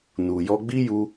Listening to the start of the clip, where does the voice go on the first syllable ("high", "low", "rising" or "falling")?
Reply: low